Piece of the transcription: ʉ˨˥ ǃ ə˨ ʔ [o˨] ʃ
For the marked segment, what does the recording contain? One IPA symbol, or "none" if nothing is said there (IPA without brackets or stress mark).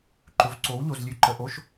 o˧˥˧